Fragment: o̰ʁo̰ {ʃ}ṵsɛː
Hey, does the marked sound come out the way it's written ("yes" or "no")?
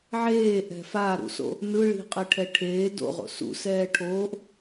no